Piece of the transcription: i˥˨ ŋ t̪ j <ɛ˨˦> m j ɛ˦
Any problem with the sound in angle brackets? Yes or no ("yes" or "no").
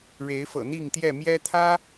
yes